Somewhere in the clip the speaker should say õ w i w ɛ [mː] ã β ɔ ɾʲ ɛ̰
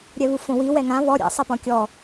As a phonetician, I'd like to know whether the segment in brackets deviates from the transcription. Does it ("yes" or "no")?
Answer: yes